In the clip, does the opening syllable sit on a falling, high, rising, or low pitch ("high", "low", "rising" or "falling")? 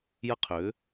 high